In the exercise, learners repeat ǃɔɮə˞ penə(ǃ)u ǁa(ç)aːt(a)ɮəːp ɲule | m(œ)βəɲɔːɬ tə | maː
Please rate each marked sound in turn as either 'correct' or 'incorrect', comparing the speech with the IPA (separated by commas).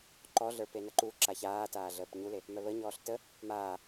correct, correct, incorrect, correct